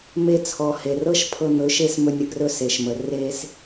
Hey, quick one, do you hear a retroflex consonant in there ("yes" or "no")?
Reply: no